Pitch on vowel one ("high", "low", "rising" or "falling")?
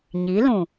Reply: rising